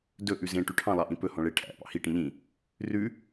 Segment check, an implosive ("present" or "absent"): absent